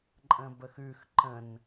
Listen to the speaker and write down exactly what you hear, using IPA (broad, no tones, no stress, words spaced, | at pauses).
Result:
ǃʼə̃bəxʉx ǃə̃n